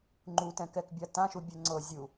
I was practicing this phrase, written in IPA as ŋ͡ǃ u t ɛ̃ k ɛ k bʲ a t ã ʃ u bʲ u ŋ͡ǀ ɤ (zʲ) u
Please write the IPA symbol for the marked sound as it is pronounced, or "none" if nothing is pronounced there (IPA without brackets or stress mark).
zʲ